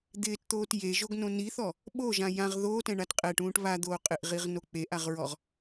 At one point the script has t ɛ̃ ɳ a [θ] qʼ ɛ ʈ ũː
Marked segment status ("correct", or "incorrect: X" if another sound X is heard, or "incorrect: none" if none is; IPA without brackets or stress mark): incorrect: t